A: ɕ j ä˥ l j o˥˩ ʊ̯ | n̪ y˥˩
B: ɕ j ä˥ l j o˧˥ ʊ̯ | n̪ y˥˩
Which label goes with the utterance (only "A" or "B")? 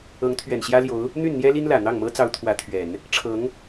B